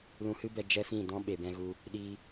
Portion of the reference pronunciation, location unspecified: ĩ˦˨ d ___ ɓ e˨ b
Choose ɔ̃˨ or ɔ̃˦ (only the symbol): ɔ̃˦